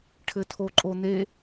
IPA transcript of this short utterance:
ʈʰɘtʰoǃʼon̪e

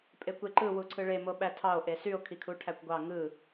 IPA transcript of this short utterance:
pʼekʷeǃɯ wuǀʰɯɭe moɓætʰɑo̯ ʔesyo̯ kʰikʰuʈʰækʷɡʷɑ ŋɯ

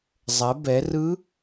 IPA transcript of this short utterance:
zˤɛ˩˧bɛ˩˧rɯ˧˥

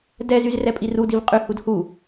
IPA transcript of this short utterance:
dɛzyz rɛpʼirudiv qʼyhud hu

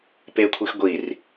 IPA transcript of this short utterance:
pekʷʰix ɡʷir

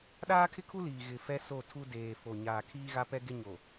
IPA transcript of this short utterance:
ɗaː˦kʰɪ˦kʰu˦ liː˨ɣɪ˨ fɛ˦so˦˨ tʰu˦ deː˨fo˨ɲaː˨ kʰiː˦ɣa˦pɛ˦ ɡɪ˦ɲo˨

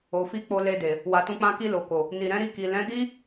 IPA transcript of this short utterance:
o˨fi˧ k͡po˧le˧de˨ | wa˨tũ˧k͡pã˧ki˧ lo˨ko˨ | ni˨ɾɛ̃˨˦ɾi˦˨ki˨ lɛ̃˨˦di˦

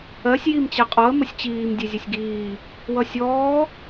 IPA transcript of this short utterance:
ɜsʲ jimt͡ɕɛqʼɔə̯ məsʲt͡ɕiːm dʲezʲɛsʲɡiː | wʌsʲɔː

